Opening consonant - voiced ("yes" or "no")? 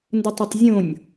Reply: yes